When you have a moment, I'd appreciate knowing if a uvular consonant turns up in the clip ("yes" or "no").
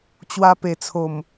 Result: no